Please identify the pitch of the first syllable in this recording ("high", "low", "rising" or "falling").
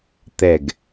falling